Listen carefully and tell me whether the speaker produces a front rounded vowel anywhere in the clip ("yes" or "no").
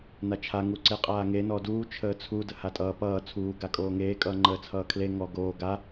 no